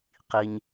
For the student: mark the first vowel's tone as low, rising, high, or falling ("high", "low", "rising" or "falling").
low